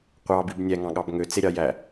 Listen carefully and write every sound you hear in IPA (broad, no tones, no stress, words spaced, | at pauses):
qʷɑbib nʲæŋɑ̃ɠɑb ŋøt͡seɾʲɑ jæ